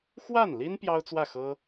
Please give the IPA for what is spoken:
x w a˥˩ n l i˥ n p j ɑ˥ ʊ̯ t͡s w ä˥˩ x ɤ˥

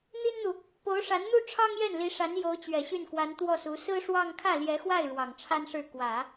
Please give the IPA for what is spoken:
n̪ i˥ n n̪ u˨ | p o˧˥ ʊ̯ ʂ a˧˥ n n̪ u˥ ʈ͡ʂʰ ɑ˥ ŋ j ɛ˥˩ n l i˧˥ ʂ a˧˥ n j o˧˥ ʊ̯ t͡ɕ ɥ ɛ˨˩ ɕ y˥˩ n k w a˧˥ n t̪ w ɔ˥˩ s u˧˥ s ɹ̩˥ ʂ w ɑ˥˧ ŋ kʰ ä˥˩ l j ɛ˧˥ x w a˥˩ ɪ̯ ɻ w ɑ˨˩ ŋ ʈ͡ʂʰ a˥ n ʂ ɻ̩˥˩ k w ä˨˩˦

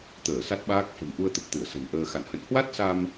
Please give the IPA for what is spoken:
t̪ əː˧˩ s a˦˥ t̚ ɓ aː˦˥ k̚ f ə̤˨˩ m ʔ u˧ ə̯ t̪ ə˨˩ p̚ t̪ ɨ˧˩ ə̯ s ə̤˨˩ n ʔ əː˧ x a̰˧˨ n h ə̰˧˨ n h w a˦˥ t̚ s a˧ m

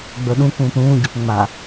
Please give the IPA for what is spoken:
ɡ͡b ɵ ɗ ũ k ũː p ɾ ũː ɟ ə p ŋ͡m a

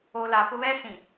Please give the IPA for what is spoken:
o˨ l a˨ p ʊ˦ β ɛ˦ s ĩ˨

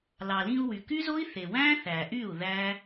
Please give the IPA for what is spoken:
l ɑ˨ l ĩ˧ u̯ w y˨ k y˦ z o˦ i̯ θ e˨ w æ̃˦ θ æ˨ ʔ y˦˨ u̯ ð æ˦

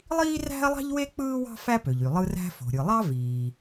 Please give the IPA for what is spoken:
lˠ iː˥ r æ̤˥ ɐ̯ lˠ ɑ̤˥ ʎ w e˥ k͡p ɯː˥ w ɑ̤˥ f æ˥ p ø˩ ʎ y˩ lˠ ɯ˥ r æ̤˥ f o̤˩ ɾʲ ɯ˩ lˠ ɑ˥ v iː˩

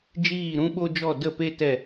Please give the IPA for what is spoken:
d͡ʒ iː˦˨ ɾ ũ˦ ɓ o˦ d͡ʒ ɔ˦˨ d ə˦˨ p e˦ t ɛ˦˨

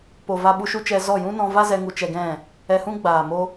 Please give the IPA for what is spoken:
p o˨ v a˧ ɓ u˧ ʃ u˦ t͡ʃ ɛ˧ z ɔ˦˨ j ũ˦ n ɔ̃˧ v a˦ z ɛ˧ ŋ u˧ t͡ʃ ɛ˧ ɡ ɛ̃˦˨ | ɛ˧ h ũ˦ ɡ͡b aː˨ m o˦

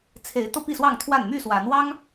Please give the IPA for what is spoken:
t͡sʰ e˨˦ ɪ̯ t̪ ɤ˧ p i˥˨ s w ɑ˥˨ ŋ t̪ʰ w a˥˨ n m y˥˨ s w a˨˦ n w ɑ˦ ŋ

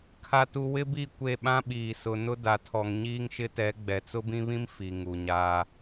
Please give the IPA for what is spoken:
kʰ a˨ t u˨ w ɪ˦ b i˦˨ kʷ e˦˨ ɓ ã˦ ɓ iː˨ s ʊ˨ n ʊ˦ d a˨ tʰ ɔ˨ ŋ ɲ iː˦ ŋ ʃ ɪ˦ t ɛ˨˦ ɡ͡b ɛ˨ t͡s ʊ˦ b ĩ˦ β ĩ˦ m f i˨ ŋ u˨ ɲ aː˦

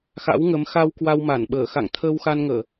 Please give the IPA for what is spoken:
x a̰˧˥ w ŋ ə˨˦ m x a˧ w k w a˧ w m a˧˩ n ɓ əː˧˩ x a̰˧˨ ŋ t̪ʰ əː˧ w x a˧ n ŋ əː˧˩˨

